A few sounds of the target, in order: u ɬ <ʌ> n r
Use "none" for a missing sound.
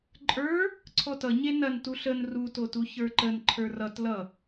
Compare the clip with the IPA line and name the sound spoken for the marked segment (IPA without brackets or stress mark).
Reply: ə